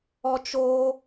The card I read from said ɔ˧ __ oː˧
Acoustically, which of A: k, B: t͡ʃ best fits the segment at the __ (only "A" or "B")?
B